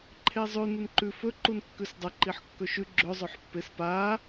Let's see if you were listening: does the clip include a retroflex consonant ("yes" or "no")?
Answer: no